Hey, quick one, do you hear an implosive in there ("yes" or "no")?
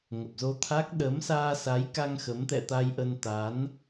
yes